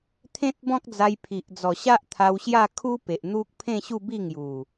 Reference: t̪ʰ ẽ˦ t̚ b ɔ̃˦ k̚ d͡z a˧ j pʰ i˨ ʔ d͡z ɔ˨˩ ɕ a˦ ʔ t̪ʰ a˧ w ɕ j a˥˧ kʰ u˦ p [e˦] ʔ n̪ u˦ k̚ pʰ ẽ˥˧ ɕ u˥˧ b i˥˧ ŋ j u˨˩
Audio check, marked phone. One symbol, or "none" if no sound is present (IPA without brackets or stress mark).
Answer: e˨